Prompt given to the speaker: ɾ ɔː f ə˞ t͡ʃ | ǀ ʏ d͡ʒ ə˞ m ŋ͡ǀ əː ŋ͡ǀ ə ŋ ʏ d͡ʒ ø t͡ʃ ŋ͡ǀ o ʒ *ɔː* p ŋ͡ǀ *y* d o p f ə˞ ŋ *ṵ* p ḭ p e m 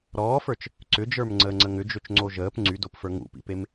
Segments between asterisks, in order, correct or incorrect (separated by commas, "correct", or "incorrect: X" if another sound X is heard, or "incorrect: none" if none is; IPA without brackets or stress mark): incorrect: əː, correct, correct